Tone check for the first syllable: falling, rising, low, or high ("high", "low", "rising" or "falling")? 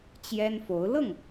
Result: high